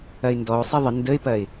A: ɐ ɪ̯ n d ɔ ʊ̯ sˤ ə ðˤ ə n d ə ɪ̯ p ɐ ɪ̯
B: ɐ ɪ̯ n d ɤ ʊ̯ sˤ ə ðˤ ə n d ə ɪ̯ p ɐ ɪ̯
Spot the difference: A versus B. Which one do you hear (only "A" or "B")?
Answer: A